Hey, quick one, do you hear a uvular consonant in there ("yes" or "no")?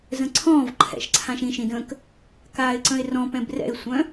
no